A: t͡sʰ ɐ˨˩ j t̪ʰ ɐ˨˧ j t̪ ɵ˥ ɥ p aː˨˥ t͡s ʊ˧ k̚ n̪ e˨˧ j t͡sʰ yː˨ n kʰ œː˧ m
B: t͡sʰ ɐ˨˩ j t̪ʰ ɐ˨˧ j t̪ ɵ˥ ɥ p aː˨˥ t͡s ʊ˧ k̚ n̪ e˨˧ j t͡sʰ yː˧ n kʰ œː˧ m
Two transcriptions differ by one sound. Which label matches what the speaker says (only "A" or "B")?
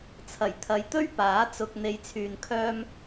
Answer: A